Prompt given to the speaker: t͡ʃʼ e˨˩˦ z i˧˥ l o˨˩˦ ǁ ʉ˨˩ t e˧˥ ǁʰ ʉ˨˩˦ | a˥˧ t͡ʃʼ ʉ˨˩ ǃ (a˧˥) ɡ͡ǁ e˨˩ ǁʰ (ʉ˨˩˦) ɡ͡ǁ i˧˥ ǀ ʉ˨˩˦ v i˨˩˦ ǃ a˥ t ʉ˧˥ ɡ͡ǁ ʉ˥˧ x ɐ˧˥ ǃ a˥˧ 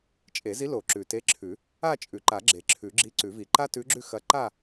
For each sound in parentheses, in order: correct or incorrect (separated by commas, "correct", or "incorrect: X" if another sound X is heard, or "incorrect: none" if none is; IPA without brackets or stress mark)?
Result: incorrect: a˨˩˦, correct